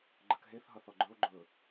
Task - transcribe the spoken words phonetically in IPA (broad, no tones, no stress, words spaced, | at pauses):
ɡ͡ǃəkɦeθ ɦʌθɔɡ͡ǃɵo̯ ɡ͡ǃɵ